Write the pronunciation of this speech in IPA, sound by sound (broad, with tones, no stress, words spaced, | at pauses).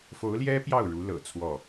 fo˧˥ʊ̯ljɛ˥ pjɑ˥˩ʊ̯ɻu˧˥lɤ̰˨˩ t͡sʰwɔ˥˩